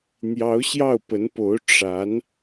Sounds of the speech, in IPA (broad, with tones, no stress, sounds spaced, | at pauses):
n̪ j ɑ˧˥ ʊ̯ ɕ j ɑ˥˩ ʊ̯ p ə˧˥ n p o˧˥ ʊ̯ ʈ͡ʂ a˧˥ n